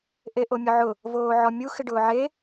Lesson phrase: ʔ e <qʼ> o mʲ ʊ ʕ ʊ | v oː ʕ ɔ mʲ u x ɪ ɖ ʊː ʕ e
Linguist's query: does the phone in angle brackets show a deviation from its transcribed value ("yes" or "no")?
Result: yes